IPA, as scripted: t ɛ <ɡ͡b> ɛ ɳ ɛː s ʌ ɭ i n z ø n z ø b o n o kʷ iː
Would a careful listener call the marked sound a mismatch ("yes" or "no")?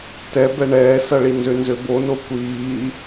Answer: yes